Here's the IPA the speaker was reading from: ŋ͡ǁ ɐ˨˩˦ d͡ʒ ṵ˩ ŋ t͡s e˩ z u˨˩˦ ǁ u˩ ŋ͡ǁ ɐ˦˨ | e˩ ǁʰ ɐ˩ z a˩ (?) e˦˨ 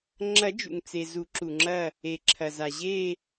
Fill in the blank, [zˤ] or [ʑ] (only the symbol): ʑ